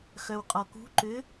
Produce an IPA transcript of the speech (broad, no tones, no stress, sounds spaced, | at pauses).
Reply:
x œ w qʼ ɔ k ṳ ǃ ʏ